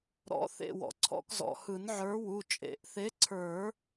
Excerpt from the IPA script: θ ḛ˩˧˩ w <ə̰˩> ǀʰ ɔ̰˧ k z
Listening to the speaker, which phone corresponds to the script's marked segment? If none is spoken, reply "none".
ɔ̰˩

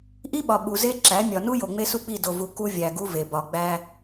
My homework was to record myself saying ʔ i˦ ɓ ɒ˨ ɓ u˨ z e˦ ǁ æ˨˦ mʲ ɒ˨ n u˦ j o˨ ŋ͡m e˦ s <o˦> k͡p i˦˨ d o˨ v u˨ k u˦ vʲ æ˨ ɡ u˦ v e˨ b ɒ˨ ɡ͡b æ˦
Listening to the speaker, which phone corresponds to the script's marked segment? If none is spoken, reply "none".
u˦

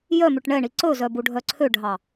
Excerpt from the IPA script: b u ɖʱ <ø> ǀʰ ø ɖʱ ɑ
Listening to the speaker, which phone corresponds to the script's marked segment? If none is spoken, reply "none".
œ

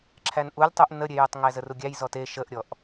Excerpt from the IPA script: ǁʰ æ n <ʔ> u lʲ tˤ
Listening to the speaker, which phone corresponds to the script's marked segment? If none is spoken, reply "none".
ʔ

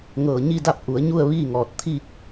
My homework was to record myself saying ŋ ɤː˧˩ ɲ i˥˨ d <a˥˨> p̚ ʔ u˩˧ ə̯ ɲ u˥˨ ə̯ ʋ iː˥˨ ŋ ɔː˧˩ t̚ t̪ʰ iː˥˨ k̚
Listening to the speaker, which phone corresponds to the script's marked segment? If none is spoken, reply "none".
a˥˨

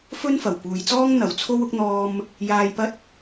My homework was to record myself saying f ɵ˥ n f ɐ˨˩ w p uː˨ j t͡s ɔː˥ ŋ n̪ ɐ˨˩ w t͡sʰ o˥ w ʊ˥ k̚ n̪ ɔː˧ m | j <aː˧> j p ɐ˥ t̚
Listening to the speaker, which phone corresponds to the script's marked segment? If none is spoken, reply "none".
aː˧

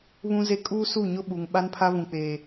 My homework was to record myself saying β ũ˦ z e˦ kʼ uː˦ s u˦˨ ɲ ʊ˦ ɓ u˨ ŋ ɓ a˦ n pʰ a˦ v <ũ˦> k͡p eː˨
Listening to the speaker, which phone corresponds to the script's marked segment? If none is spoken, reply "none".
ũ˨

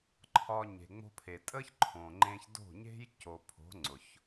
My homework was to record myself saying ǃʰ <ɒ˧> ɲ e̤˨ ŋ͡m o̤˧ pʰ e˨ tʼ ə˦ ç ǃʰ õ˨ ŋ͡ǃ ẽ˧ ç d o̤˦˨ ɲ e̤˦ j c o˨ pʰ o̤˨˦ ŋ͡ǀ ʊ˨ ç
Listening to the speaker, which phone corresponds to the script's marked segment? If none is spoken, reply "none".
ɒ˧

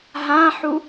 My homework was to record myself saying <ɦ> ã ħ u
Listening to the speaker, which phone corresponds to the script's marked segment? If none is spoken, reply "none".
ɦ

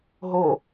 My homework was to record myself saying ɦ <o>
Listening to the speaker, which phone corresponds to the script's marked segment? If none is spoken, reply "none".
o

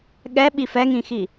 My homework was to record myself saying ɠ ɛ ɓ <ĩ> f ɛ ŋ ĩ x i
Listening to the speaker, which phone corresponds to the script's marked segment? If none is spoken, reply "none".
i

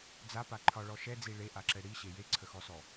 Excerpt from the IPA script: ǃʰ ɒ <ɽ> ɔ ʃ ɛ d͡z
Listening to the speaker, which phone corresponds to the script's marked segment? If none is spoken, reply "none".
ɭ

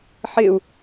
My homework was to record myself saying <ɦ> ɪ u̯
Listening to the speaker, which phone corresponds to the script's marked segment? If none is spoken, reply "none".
ħ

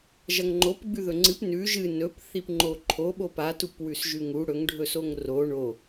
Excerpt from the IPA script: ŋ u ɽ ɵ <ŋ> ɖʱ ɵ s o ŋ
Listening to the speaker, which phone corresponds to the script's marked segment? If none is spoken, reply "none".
ŋ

